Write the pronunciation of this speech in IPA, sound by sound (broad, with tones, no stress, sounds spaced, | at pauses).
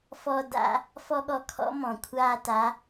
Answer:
f ɔ˧ d a̰˩˧ | f ɔ˥ ɠ ɔ˧˥ kʰ ɔ̰˧˥ m ɔ̃˩ kʷʰ aː˧ t a˩˧